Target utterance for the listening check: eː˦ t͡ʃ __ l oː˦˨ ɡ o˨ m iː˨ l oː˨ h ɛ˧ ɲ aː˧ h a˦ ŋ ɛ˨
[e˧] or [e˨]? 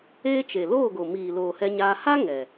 e˨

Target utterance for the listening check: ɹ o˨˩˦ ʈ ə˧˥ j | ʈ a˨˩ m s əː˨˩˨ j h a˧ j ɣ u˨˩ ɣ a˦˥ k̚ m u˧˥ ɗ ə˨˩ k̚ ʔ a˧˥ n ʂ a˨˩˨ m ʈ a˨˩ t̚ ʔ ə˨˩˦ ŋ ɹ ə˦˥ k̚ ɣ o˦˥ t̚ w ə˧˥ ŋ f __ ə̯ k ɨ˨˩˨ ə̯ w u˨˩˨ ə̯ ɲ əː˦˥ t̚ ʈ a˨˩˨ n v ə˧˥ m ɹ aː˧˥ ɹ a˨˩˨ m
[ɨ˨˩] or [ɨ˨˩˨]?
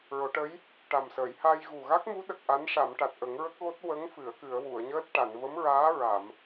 ɨ˨˩˨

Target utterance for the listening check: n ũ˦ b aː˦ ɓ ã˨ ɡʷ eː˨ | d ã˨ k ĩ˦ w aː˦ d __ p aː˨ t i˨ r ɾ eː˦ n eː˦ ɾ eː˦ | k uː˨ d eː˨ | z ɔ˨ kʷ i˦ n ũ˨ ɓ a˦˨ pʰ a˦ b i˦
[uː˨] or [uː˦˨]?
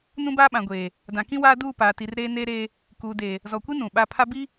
uː˦˨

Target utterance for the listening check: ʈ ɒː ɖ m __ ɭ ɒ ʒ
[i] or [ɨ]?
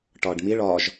i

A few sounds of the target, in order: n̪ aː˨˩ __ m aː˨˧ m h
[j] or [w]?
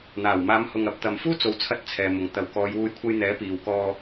w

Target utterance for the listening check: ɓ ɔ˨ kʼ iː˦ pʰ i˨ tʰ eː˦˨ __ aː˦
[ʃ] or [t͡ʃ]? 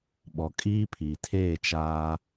t͡ʃ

